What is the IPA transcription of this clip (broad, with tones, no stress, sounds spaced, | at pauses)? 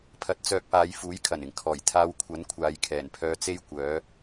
pʰ ɐ˧ t̚ t͡s œː˧ k̚ p aː˨˧ j f uː˨˥ j kʰ ɐ˨˩ n ɪ˨˩ ŋ kʰ ɔː˨˩ j t̪ʰ aː˧ w kʷʰ ɐ˨˥ n kʷʰ aː˨ j kʰ ɛː˨˩ n pʰ œː˧ t͡s e˥ j kʷ œː˨˥